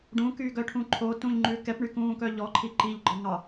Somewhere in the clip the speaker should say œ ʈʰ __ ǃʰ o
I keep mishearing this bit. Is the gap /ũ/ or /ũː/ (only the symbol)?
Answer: ũ